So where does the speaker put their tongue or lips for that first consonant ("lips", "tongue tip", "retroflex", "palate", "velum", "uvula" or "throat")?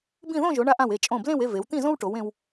lips